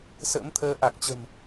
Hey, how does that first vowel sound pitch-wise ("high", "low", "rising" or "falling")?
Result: rising